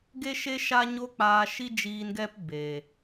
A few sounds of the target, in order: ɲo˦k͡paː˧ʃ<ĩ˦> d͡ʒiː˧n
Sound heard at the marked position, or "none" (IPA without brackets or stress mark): i˦